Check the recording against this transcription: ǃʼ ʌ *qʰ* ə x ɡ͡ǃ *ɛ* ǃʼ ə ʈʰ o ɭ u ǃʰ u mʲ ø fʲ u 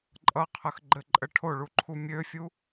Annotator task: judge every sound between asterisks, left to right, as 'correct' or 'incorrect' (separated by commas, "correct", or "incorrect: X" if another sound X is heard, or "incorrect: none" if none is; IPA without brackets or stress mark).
correct, incorrect: ɘ